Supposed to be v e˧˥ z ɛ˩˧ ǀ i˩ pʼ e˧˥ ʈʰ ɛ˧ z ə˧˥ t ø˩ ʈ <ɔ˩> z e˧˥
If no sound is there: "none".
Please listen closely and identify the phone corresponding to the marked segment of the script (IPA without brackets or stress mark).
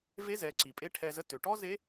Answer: ɔ˥